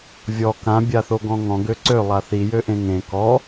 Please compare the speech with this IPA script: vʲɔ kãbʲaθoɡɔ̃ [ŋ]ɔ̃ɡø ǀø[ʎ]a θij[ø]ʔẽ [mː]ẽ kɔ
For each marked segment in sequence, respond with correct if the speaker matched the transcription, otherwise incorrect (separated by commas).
correct, incorrect, correct, incorrect